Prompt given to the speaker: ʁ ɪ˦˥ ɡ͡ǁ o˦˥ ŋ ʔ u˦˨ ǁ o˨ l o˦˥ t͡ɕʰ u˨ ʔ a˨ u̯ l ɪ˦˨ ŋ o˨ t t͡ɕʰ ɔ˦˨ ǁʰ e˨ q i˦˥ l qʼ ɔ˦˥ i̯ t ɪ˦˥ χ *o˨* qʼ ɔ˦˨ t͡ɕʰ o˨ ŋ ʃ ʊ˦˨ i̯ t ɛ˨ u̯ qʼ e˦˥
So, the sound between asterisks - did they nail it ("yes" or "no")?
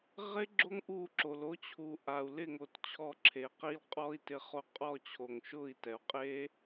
no